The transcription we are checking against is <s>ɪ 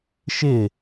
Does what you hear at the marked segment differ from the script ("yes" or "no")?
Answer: yes